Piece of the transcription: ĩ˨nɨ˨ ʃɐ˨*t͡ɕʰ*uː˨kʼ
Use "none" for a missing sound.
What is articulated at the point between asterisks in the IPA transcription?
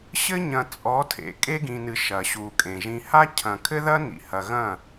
ɕ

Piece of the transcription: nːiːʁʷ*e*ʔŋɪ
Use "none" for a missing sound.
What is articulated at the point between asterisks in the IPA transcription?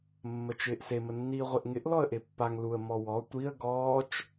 e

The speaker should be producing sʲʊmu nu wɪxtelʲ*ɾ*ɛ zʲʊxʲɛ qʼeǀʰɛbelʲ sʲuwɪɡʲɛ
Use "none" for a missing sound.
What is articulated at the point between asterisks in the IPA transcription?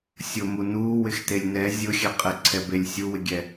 n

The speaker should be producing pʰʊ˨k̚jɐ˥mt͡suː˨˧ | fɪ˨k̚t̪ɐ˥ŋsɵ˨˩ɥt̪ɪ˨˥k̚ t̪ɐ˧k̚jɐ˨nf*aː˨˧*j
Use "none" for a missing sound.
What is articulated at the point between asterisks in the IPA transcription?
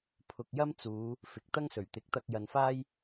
aː˥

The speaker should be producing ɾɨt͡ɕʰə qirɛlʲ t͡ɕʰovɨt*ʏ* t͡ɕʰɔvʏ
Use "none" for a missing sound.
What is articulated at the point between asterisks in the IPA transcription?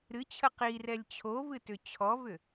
ʏ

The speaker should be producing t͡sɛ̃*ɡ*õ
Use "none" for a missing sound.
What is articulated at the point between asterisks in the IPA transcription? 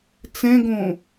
ɡ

